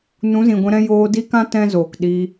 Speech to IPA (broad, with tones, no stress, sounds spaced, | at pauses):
n ũ˨˦ z ĩ˨ ɡʷ ɛ̃˧ ɾ ɛ̃˦ j oː˧ d i˦ k ã˦ t ɛ̃˦ z oː˨ k ɗ i˧